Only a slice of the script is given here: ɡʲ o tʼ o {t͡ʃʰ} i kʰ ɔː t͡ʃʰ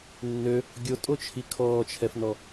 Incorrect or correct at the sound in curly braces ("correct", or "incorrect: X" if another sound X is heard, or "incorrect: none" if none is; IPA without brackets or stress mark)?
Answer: correct